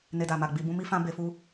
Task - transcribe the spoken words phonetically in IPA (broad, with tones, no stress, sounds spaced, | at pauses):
n e˧ d a˨ m a˨ ɡ͡b i˧ b ũ˦ m i˦ f ã˦ b e˧ f u˦